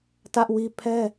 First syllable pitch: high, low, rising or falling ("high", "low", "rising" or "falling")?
high